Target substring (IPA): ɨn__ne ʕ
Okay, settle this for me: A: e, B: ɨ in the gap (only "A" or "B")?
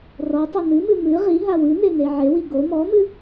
A